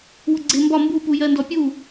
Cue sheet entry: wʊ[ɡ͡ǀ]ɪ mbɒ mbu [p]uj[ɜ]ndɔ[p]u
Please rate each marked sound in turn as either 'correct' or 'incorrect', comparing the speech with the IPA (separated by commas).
correct, correct, correct, incorrect